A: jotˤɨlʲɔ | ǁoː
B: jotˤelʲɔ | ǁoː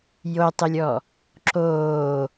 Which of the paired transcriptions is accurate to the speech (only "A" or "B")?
B